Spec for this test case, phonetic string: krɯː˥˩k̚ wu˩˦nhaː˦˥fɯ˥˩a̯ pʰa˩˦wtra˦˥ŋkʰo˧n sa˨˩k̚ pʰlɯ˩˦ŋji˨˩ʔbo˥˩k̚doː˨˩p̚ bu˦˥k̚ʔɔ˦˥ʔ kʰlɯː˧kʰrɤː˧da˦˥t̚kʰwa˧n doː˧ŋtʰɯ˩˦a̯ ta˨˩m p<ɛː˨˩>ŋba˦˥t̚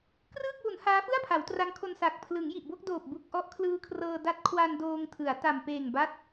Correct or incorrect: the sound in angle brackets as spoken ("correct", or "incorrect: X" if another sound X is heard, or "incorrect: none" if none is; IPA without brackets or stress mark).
incorrect: eː˨˩